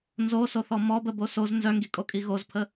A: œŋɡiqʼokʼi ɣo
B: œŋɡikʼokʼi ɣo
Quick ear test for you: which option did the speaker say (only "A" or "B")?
B